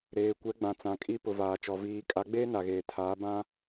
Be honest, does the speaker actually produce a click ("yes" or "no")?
no